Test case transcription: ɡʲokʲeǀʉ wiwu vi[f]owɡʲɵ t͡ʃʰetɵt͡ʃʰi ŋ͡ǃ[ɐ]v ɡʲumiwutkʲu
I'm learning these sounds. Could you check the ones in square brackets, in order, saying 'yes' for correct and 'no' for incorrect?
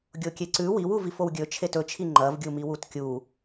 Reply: yes, yes

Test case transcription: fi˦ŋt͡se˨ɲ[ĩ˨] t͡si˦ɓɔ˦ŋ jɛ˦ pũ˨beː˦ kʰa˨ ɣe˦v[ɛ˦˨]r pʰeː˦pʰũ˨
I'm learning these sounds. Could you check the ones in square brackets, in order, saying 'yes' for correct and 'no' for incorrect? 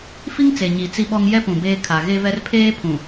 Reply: no, no

